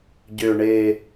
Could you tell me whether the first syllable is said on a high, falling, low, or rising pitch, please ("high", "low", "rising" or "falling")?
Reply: low